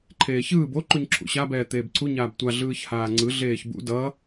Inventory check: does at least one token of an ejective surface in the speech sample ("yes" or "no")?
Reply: no